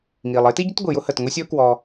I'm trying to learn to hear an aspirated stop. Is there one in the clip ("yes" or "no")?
no